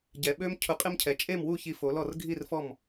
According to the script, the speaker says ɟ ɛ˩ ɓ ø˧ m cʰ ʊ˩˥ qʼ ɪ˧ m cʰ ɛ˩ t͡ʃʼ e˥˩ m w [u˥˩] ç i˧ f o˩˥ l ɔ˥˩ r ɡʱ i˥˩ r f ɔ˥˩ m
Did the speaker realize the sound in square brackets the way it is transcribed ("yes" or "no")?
yes